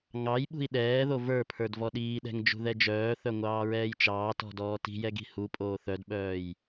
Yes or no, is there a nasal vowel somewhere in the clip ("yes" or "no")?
no